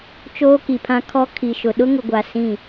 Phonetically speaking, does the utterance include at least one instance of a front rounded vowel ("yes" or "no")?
no